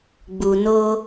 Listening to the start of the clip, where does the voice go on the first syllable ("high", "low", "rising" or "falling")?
low